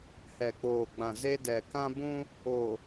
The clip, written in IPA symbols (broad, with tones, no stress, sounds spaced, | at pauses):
h ɛ˨ k͡p oː˨ ɡ͡b ã˨ z e˦ d ɛ˨ k ã˦ b ũ˦ | o˨